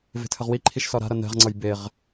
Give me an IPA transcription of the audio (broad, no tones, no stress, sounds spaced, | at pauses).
v e̤ tʰ ə ʁ w i ǃʰ i ʃ s ɒ ɾ a̤ ɾ ʌ n ɛ̤ ʁ ŋ͡ǀ ʌ j b e ʁ